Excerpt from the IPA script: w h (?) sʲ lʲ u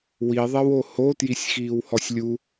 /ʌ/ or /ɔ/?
ɔ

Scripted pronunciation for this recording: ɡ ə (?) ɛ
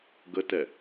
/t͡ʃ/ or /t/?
t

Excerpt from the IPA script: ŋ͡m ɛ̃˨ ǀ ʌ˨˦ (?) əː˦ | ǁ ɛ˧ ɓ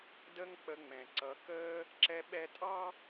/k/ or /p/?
k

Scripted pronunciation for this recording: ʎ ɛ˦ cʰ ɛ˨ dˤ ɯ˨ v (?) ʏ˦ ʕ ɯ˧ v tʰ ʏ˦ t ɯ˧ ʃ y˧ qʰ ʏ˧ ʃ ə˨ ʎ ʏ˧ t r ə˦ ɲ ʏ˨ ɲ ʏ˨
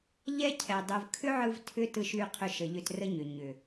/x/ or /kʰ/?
kʰ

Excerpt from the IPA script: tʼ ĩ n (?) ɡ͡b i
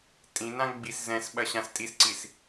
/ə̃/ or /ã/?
ã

